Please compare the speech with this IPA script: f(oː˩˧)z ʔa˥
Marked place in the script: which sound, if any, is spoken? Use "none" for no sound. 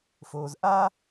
oː˧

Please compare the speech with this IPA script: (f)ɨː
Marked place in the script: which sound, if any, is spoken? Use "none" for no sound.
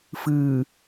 f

